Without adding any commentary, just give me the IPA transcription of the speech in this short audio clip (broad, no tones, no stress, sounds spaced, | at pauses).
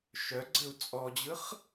ʃ œ ɡ͡ǀ ɘ u̯ t͡sʼ ɔ d͡ʑ ɯ χ